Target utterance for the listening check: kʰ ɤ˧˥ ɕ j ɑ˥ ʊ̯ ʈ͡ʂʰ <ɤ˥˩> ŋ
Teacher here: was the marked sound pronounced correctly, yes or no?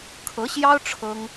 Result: no